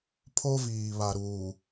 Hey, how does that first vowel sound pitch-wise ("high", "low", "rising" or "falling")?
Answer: high